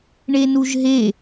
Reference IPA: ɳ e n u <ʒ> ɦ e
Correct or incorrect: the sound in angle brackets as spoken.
correct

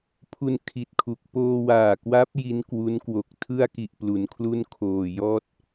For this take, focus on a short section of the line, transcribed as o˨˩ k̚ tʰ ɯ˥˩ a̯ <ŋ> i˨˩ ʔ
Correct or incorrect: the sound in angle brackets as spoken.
incorrect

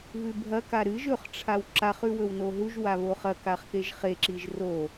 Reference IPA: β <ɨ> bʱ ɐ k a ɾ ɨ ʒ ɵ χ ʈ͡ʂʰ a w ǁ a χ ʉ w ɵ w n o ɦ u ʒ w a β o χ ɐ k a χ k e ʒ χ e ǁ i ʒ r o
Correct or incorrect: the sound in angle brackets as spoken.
incorrect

